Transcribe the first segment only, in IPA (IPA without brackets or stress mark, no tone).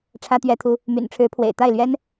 ʈ͡ʂʰ